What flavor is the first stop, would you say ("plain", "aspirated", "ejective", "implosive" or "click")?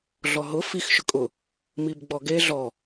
ejective